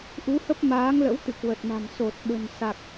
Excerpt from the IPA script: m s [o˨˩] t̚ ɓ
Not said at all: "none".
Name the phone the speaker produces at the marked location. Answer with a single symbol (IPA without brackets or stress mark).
o˨˩